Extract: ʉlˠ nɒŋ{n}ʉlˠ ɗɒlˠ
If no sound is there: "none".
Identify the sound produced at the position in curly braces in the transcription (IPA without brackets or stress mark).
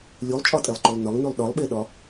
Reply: n